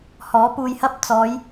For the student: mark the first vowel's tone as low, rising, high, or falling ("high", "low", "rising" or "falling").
rising